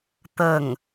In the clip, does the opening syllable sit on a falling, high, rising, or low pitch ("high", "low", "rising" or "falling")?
falling